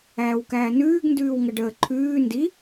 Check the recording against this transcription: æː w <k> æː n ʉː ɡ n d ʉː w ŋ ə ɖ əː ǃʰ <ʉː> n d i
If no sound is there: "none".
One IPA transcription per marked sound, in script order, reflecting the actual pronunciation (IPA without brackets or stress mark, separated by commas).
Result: k, ʉː